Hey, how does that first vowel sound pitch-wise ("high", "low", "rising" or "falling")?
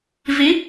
rising